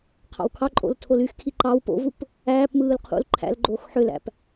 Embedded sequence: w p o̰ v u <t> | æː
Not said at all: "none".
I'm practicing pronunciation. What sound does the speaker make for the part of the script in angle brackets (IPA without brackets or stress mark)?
p